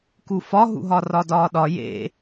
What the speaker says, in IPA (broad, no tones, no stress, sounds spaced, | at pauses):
k u f ɒ ɦ ṵ ɦ ɒ r ɒ d ɒː ɗ ɒ j ḛ